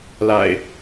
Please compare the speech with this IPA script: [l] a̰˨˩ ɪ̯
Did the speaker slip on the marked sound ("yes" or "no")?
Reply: no